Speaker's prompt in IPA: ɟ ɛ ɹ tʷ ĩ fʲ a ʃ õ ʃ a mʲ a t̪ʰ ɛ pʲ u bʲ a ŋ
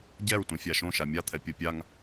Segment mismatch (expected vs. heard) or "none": bʲ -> pʲ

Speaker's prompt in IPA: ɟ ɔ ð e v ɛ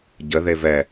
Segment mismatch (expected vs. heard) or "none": ɔ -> ə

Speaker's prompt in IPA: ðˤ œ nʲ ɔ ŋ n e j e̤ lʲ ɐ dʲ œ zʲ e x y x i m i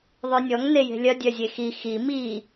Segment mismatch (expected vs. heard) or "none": y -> i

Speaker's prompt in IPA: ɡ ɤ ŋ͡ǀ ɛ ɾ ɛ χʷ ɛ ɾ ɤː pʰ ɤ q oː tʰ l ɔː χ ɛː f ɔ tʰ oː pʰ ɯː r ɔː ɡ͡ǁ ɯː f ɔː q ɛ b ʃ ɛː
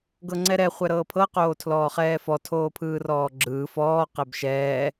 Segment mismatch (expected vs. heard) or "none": none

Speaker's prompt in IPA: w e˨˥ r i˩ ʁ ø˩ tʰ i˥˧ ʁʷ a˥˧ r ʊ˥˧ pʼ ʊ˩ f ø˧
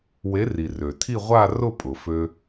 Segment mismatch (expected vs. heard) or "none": ʁ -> r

